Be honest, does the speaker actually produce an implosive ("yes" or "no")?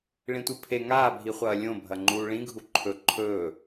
no